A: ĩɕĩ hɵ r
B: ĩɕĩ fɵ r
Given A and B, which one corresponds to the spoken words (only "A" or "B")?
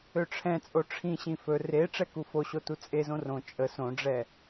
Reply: B